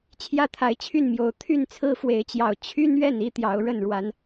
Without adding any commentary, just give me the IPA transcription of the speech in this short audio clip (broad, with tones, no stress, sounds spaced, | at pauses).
t͡ɕʰ j ä˥˨ t̪ʰ a˨˦ ɪ̯ t͡ɕʰ y˥˨ n m j o˨˦ ʊ̯ t̪ʰ y˥˨ n t͡sʰ ɹ̩˦ f w e˨˦ ɪ̯ t͡ɕ j ɑ˨˩ ʊ̯ t͡ɕʰ y˦ n ɥ ɛ˥˨ n i˦ t̪ j ɑ˨˦ ʊ̯ ɻ ə˥˨ n ɻ w a˨˦ n